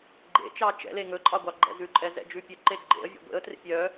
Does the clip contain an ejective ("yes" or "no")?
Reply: yes